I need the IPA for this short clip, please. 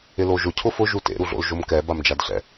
ɪ l o ʒ ʊ cʰ ʊ f ʊ ʒ u t ḛ ɾ u ɮ o̰ l ʒ o m k ɛ b a m d͡ʒ a d ɬ ɛ̰

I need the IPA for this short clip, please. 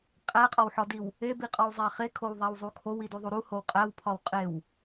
qʼ æ qʼ ɒ w ħ ɒ d i w | e b i qʼ ɒ w zˤ æ χ e kʰ o w ðˤ æ w zˤ u kʰ o w i d u ðˤ u ɾ u h o w qʼ æ w pʰ ɒ w qʼ e w

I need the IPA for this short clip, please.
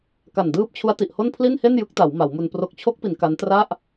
k a˨˩ n d ɯː˦˥ p̚ t͡ɕʰ u˦˥ a̯ t i˨˩ ʔ h o˥˩ n pʰ l i˥˩ n h e˥˩ n j ɯ˦˥ k̚ t a˩˦ w m a˩˦ w m u˧ n p r o˨˩ k̚ t͡ɕʰ o˦˥ k̚ p i˩˦ n k a˦˥ n t r a˥˩ ʔ

